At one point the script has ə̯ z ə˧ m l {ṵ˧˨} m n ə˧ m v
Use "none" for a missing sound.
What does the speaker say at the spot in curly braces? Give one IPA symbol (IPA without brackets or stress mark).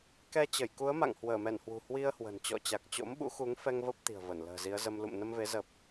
ṵ˧˨